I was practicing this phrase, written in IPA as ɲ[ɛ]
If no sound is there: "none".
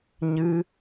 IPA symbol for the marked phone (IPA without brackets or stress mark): ɨ